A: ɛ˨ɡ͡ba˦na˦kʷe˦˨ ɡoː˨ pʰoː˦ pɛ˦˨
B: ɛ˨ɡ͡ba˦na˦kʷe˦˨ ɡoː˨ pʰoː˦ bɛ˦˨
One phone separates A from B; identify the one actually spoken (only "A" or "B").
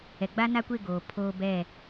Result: B